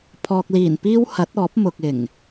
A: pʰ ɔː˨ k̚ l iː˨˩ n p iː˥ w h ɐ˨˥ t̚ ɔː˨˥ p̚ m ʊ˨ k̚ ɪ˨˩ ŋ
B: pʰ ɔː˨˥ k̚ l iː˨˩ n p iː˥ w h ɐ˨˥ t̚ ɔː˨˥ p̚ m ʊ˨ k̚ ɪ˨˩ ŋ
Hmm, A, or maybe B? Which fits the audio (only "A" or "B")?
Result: A